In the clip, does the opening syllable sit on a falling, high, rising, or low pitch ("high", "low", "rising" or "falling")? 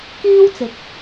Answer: high